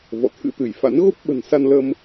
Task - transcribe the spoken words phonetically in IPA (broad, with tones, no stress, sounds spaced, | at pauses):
v ɔ̰˧˨ t̪ʰ ɨ̰˧˥ t̪ ɨ˧˩ j f a̰˧˥ n ɣ o˦˥ p̚ ɓ ə̤˨˩ n s a˧ n l ə˧ m